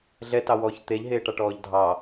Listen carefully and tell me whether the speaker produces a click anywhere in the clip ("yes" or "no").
no